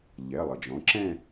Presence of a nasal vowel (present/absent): present